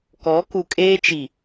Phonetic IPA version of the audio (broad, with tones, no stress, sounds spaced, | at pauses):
k ɔ˨˦ k u˨ kʼ eː˦ t͡ʃ i˨